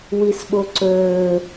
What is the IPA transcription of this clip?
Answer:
w i s ɓ o ǀ ɵː

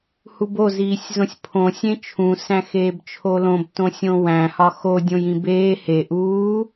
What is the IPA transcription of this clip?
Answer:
h u b o z iː sʲ z õ sʲ pʰ õ sʲ ẽ t͡ʃʰ ũ s æ̃ x eː b t͡ʃʰ o l õ b t õ sʲ õ w æ̃ h ɒ x o dʲ õ j ĩ b eː h e ʔ uː

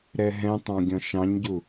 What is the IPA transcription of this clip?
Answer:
ɾ ɛ ɦ ɛ̃ tˤ ɑ̃ ɡʲ ɔ̃ ʃ ɑ̃ ɲ ɟ u

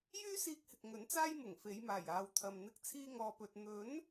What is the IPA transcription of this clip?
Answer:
j yː˥ s iː˧ k̚ h ɪ˨ k̚ ŋ ɵ˨˥ n t͡s aː˥ j m ʊ˨˩ ŋ f e˨˧ j m aː˨˩ j aː˨ w t̪ʰ ɐ˨ m n̪ ɪ˧ k̚ t͡sʰ iː˧ ŋ ɔː˨ p ɵ˨ t̚ n̪ ɵ˨˥ n

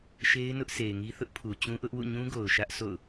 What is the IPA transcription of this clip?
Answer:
ʃ e˦ ɪ̯ n ʊ˦ ʔ sʰ e˨ ɪ̯ ŋ i˦ θ ʊ˦ ʔ pʰ u˨ t͡ɕ ũ˦ ʔ ʊ˦ ʔ w ṵ˦˨ ɲ ũ˦ ɡ o˨ ʊ̯ ʃ ä˦ ʔ sʰ o̰˦˨ ʊ̯

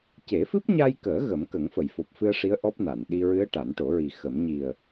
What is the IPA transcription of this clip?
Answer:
c e˨˩˦ f ɨ˦˥ p̚ ɲ a˧ j k əː˨˩˦ ɣ ə˨˩˦ m k ə˨˩˦ ŋ f ə˨˩˨ j f o˨˩ p̚ f ɨ˧ ə̯ ʂ i˧˥ ə̯ ʔ ɔ˦˥ p̚ n a˨˩˨ n ɗ i˧ ɹ ɨ˧˥ ə̯ ʈ a˨˩˦ n ʈ o˨˩˦ ɹ i˨˩ x ə˨˩˦ m ɲ i˨˩ ə̯

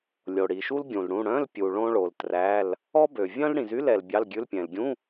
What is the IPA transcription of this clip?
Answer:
lʲ o˨ ɽ i˨ ʃ u˥ l ɡʲ ũ˨ l ɽ ũ˧˥˧ ɽ œ̃˧˥˧ l pʲ u˨ ɭ õ˥ ɭ o˨ l t r æ˧˥˧ l | ɔ˥ b ø˨ vʲ œ̃˥ l ɽ ĩ˨ z y˧˥˧ l ɛ˨ l bʲ ɑ˧˥˧ l ɡʲ ʉ˧˥˧ l pʲ ɛ̃˨ l ɡʲ ũ˧˥˧

